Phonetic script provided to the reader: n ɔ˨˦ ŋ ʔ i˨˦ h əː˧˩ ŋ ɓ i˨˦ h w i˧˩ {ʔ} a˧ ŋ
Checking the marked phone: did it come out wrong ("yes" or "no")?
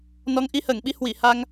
yes